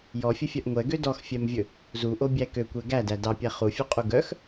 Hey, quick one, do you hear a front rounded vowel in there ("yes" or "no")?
yes